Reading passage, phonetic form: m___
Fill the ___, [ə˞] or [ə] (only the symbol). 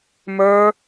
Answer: ə˞